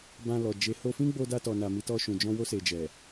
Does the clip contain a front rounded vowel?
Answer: no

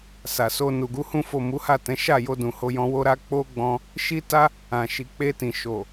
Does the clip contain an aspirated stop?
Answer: no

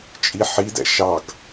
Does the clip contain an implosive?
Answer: no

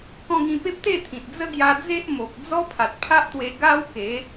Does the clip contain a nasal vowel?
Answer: yes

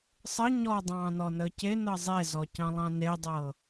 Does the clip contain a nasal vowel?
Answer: yes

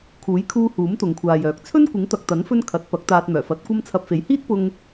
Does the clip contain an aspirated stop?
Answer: yes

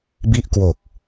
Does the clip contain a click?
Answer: no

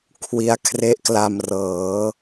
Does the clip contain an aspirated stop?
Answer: yes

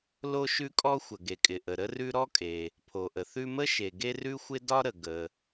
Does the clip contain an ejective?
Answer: yes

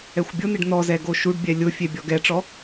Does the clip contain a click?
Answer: no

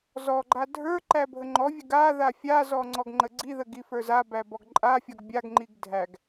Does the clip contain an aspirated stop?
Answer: no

